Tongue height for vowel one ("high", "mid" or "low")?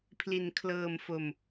high